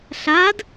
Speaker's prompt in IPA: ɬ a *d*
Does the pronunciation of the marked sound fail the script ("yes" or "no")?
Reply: no